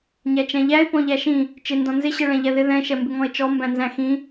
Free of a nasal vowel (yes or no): no